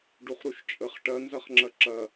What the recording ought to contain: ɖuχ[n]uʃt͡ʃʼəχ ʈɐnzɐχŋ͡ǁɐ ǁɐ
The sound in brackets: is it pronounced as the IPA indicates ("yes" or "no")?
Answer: no